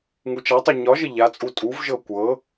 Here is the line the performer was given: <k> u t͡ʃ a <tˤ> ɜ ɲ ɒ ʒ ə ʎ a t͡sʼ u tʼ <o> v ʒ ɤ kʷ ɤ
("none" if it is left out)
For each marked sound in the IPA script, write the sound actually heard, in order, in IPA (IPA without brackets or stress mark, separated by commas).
ŋ, tˤ, u